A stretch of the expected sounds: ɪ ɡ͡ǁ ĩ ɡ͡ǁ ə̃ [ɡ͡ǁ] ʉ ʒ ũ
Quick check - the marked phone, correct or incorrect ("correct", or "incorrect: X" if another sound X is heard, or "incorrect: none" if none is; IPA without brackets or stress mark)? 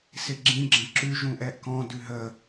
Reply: incorrect: ǁ